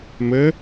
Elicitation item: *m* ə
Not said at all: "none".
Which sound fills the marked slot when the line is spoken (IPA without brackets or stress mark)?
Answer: m